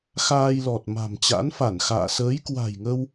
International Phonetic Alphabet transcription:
x aː˧ j l ɔ˨˩ t̚ m a̤˨˩ m t͡ɕ a̰˧˥ n f a˧˩ n x a̰ː˧˨ s əː˨˦ j k w a̤˨˩ j ŋ ə˧ w

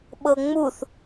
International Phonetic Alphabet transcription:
ɓ ɤ ŋ͡m u θ

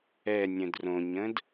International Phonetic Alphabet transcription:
ɛ nʲ ə̃ d r õ ɲ ə̃ d

